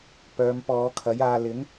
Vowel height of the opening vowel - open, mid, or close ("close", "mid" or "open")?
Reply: mid